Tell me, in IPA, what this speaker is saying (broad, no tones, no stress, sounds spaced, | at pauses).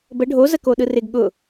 b ə ɖʱ o z ə k o ɗ ɯ r ɪ ɡ ɠ ʊ